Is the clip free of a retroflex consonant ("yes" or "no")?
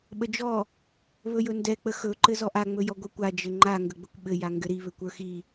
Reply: yes